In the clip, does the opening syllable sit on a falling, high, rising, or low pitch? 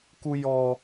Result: low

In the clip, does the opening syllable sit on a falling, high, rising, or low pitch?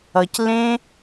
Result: low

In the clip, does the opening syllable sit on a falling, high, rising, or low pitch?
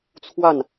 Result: falling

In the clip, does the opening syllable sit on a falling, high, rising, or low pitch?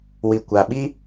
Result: low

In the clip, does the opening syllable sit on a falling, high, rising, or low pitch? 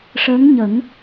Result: rising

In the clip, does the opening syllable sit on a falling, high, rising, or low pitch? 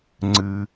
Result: low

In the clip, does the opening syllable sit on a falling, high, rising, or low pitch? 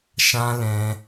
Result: high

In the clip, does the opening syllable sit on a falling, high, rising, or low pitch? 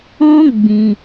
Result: high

